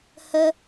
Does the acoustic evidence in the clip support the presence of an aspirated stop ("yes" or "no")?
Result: no